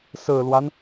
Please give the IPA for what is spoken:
sɹ̩˨˩lwa˦n

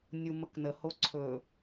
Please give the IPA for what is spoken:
nʲuməknə hoǀʰɵ

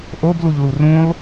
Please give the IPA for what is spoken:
ʔobluʎlu rũlˠ

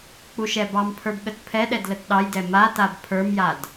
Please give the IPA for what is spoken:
k͡puʃɛbɑmpʰə˞b ɠətpʰɛɗɛd lətɗɑjdɛ ma tabpʰə˞mjad

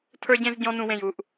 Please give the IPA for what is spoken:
tʰə˞˥ɟẽ˥z ɟɔ̃˥nũ˧wẽ˧˩j u˥˧ʔ

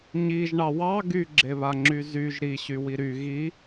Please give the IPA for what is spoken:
ɲiʒɳɑ wɑ ɡyɡ͡ǁeβaŋ͡ǁy zyʒ ɾiɕywi ɾy ɣi

